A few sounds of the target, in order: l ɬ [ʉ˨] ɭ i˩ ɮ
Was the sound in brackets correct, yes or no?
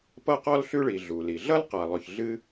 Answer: no